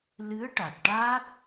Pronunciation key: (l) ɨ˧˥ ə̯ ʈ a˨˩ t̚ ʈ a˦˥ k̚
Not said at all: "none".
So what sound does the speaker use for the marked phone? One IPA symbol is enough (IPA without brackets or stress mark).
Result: l